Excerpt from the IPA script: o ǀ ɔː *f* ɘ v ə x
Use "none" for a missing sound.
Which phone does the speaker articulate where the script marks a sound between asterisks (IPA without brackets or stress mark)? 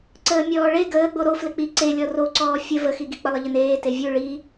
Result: fʲ